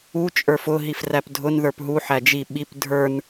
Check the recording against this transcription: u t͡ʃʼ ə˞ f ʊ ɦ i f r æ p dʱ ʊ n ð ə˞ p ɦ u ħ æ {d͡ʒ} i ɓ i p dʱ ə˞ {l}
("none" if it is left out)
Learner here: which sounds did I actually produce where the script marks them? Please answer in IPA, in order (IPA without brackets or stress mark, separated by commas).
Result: d͡ʒ, n